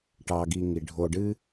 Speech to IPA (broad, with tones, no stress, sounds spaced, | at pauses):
ʈ ɑ˨ ɡ i˨ ŋ i˩ ɖʱ o˨ ɖ ɨ˥